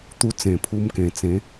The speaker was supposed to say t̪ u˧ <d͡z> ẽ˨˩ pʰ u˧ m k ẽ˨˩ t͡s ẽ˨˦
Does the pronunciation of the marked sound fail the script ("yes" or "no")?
yes